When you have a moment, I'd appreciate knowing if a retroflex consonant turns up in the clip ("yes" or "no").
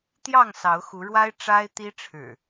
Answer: yes